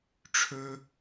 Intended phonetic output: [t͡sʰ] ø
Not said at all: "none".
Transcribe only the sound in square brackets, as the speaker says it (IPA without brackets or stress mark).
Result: ʈ͡ʂʰ